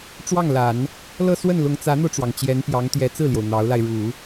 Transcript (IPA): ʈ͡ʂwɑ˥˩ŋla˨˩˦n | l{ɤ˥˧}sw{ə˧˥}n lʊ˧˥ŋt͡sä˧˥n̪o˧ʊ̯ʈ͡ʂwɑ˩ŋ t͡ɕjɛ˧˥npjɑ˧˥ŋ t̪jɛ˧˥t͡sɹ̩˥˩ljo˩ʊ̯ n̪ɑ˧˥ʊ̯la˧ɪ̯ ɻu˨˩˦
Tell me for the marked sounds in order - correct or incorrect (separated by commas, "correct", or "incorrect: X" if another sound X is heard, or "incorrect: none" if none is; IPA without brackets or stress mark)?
correct, incorrect: ə˥˩